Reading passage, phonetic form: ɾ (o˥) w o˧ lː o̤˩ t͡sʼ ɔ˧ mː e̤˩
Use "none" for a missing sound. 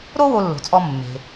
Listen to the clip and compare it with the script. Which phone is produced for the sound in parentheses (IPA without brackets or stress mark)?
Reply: o˥